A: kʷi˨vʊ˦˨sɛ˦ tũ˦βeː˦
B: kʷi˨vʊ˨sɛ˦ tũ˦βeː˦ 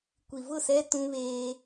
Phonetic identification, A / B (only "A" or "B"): A